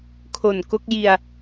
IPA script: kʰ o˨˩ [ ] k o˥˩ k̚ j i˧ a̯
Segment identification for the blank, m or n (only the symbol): n